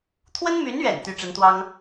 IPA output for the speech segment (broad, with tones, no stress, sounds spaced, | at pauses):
t̪ʰ w ə˥ n m y˧˥ n ɥ ɛ̰˨˩ n t̪ y˧˥ ʈ͡ʂ ə˧˥ n t̪ w ɑ˥ ŋ